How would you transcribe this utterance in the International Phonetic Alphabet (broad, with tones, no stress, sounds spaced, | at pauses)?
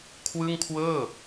kʰ w ɯ˥˩ ŋ kʰ w ɤː˥˩